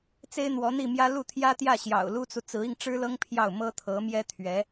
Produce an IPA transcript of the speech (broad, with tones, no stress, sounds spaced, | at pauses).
t͡s e˥ ɪ̯ n̪ w ɔ˧˥ n̪ i˥˩ m j ä˥ l u˥˩ t̪ʰ j ä˥ t̪ j ä˥˩ ɕ j ɑ̰˨˩ ʊ̯ l u˥ t͡s u˨ t͡s ɹ̩˧˥ i˧ ŋ ʈ͡ʂ ɻ̩˥ l ɤ˥ ŋ pʰ j ɑ˥˩ ʊ̯ m ɤ˥ t̪ʰ ɤ˧˥ m j ɛ˥ t̪ʰ ɥ ɛ˧˥